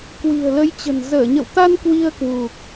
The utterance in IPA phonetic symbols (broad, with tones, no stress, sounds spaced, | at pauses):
k w i̤˨˩ ə̯ l ə˨˦ j t͡ɕ ə̤˨˩ n z əː˧˩ ɲ ə̰˧˨ w t̪ a˧ n k w i˧ ə̯ k w u˨˩ k̚